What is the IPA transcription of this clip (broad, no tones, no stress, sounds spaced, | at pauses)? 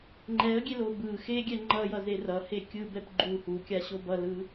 ŋ͡ǃ ɛ ə̯ ɡʲ e l o b ɯ x e ɡʲ ɛ ŋ͡ǃ ʌ j ʌ z e r ʌ h e kʲ ɯ b ɛ p ɡ͡ǃ u h u kʲ a ɕ o b ʌ l ɯ